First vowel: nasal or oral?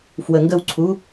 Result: oral